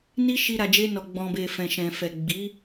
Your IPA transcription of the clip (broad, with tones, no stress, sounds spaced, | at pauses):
n i˦ ʃ i˧ ɾ a˨ d͡ʒ e˧ n ɔ˨ ɡ͡b ɔ̃˨ b e˨ f ɛ̃˨ ʃ ɛ̃˨ f ɛ˨ ɡ͡b i˨˦